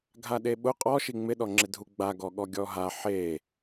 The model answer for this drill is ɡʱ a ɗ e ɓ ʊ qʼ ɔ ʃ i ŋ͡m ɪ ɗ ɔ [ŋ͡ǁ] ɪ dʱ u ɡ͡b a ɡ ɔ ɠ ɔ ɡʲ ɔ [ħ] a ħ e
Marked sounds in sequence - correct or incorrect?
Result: correct, incorrect: ɦ

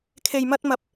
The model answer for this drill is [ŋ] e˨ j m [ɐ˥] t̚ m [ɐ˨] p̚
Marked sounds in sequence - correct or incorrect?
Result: incorrect: kʰ, incorrect: ɐ˧, incorrect: ɐ˨˥

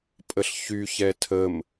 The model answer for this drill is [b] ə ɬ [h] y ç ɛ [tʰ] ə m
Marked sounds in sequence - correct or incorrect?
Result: incorrect: pʼ, incorrect: ç, correct

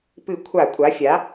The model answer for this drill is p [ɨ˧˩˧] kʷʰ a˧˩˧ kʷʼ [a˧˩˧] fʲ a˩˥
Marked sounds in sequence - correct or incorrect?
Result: correct, incorrect: a˩˥

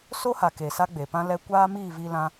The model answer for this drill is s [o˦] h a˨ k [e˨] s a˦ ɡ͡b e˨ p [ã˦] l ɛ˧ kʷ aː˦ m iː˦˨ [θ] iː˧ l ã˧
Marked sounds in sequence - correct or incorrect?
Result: correct, correct, correct, incorrect: v

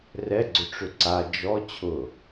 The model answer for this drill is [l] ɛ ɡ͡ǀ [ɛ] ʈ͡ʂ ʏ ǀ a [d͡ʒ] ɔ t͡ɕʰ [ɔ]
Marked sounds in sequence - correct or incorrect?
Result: incorrect: r, incorrect: ʏ, correct, incorrect: ʊ

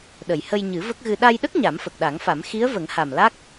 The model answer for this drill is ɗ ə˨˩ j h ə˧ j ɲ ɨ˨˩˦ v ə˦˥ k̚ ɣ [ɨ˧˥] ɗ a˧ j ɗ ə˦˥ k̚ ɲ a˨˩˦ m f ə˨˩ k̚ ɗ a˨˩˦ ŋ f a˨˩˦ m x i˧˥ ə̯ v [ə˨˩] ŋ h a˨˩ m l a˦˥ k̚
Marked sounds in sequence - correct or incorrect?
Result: incorrect: ɨ˧, incorrect: ə˨˩˦

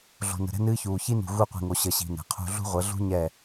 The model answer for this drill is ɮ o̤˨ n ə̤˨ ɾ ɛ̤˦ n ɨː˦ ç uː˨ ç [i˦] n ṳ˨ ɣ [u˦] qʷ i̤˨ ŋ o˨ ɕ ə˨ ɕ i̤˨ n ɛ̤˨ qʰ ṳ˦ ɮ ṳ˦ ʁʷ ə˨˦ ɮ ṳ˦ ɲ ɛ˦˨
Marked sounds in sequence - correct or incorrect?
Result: correct, incorrect: u˦˨

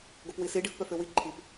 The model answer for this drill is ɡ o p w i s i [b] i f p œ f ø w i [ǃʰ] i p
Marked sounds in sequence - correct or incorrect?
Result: incorrect: ɖ, correct

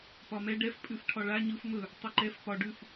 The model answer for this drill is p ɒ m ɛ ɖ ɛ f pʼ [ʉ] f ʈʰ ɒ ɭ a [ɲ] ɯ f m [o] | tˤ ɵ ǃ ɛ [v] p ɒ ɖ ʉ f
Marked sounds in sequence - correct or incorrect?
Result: correct, correct, incorrect: ɵ, incorrect: f

